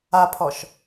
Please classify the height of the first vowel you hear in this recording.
low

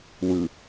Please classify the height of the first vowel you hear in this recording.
high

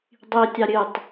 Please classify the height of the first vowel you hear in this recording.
high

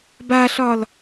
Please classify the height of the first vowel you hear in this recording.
low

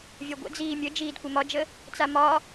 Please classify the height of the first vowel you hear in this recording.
low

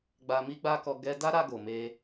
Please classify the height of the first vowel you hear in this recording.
low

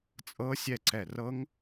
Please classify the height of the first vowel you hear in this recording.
mid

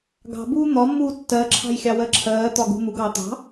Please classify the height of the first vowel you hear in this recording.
low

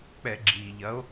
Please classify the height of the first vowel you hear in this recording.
mid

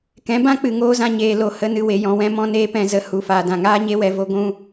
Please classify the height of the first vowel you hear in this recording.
mid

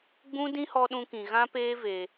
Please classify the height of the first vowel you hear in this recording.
high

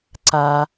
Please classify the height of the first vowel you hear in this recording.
low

